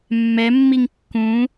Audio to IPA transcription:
mːɛmːiŋ kːũ

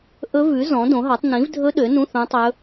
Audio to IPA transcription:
ʔɵ˦˥vʉ˨˥ zɔ̃˨˥dõ˨˥ɦɑ˨˥tˤ nĩ˨˥vdʱɵ˦˥ ɗø˨˥nũ˧˥˧ θõ˦˥tˤɵ˦˥

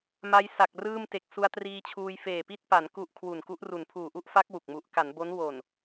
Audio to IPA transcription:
ma˦˥j sa˨˩k̚rɯː˥˩m te˨˩k̚su˧a̯triː˧t͡ɕʰuː˧j feː˨˩pi˥˩t̚pa˩˦n ku˥˩ʔ kʰwu˨˩nku˦˥ʔru˨˩n pʰuː˨˩ʔu˥˩ʔfa˦˥k̚ wu˨˩k̚mu˦˥ʔ ka˩˦nbo˦˥n wo˨˩n

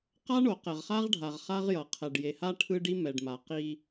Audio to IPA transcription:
qa˦ɳo˨ qɛ˨ʁχa˦ʁɖʱa˨ʁ χa˦ʁjʌ˨ qʰɛ˨ɖ je˨ha˦ ʈʰɯ˦ɖi˦ mɛ˨ɖma˨ qi˦

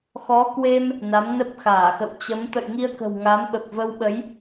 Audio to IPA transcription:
xɔ˨˦kwe˧m | na˨˦mnə˦˥p̚xaː˧˩xə̰˧˨w t͡ɕə˨˦m t̪ə̰˧˨jŋi˧ə̯kə̤˨˩w ŋa˨˦mɓə˨˩p̚və˧wɓə˨˦j

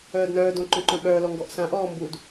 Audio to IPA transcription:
œːdnœːdõ ǃœ̃ǃœ̃ɓœːlɔ ŋɡɔʔsãʔɔː mbud

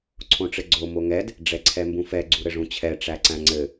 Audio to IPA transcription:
ǀʰõʈ͡ʂɘɡ͡ǀo moŋɛd | ɖ͡ʐɛǀʰɛmbũfɛ ɡ͡ǀuɾɘʐũt͡ɕʰɛ ʈ͡ʂæǀæ̃ŋ͡ǀɘ

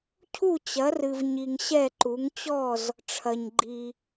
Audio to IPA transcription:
cʰu˥˩t͡ɕɐ˩˥rɨ˨v ɲi˨ŋɕɛ˥˩ǃu˩˥ŋ t͡ɕɔ˥˩z | ʈ͡ʂʰɐ˨ɲɡ͡ǃi˨

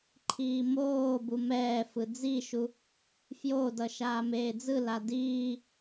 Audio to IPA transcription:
ǃʰiːmoːbu mɛːfɯ d͡ziʃu | fjodʌ ʃaːmeːd͡zɯla diː

